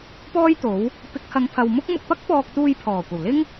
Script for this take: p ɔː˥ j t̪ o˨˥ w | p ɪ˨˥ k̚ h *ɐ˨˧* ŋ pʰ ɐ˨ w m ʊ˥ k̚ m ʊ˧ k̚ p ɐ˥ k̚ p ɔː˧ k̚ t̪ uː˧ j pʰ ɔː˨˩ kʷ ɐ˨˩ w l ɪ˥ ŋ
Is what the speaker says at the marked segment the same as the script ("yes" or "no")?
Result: yes